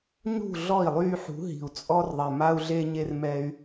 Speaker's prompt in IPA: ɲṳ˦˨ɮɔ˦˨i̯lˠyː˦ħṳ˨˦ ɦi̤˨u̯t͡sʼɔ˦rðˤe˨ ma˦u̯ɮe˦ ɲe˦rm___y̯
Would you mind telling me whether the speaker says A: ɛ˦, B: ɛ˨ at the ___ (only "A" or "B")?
A